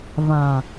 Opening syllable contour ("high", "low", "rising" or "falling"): low